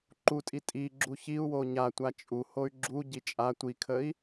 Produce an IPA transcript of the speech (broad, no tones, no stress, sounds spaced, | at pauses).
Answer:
ǃ u tʼ i tʼ i ɡ͡ǁ u ç i u̯ w o ɲ a tʷ a t͡ʃʼ u h o y̯ ɡ͡ǁ u ɟ i t͡ʃʼ a tʷ i kʰ ə i̯